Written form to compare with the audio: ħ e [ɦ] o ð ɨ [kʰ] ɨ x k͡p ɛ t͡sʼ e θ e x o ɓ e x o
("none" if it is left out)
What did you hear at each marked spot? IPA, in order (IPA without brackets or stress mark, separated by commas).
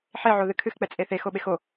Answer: ʕ, kʰ